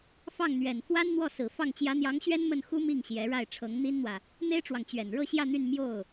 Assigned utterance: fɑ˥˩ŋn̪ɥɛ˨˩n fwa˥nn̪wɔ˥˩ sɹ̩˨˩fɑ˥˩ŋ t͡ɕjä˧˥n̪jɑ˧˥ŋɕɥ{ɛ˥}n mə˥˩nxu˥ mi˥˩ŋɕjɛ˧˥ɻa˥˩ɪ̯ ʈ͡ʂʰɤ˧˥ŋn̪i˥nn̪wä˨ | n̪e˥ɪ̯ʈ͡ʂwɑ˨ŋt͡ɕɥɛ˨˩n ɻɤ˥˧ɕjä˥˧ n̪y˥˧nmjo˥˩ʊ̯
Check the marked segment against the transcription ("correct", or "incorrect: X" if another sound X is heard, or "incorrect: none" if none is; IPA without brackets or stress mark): correct